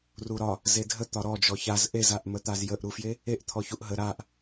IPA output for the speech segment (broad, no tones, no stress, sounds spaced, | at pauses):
r u ɾ ɒ | z e dʱ ə t̪ ɒ ɾ ɔ d͡ʒ ɔ ç a z ʔ e z a ʔ m ə t̪ a z j ə ʔ ɾ u f j e | e ʔ t̪ʰ ɔ ç u ʔ ɦ ə ɾ a ʔ